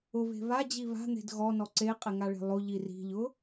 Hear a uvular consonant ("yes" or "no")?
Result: yes